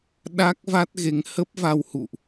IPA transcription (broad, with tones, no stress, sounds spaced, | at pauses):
ɗ a˦˥ k̚ v a˦˥ t̚ ɣ e˨˦ ŋ h ə˦˥ p̚ v a˧ w h ṵ˧˨ ʔ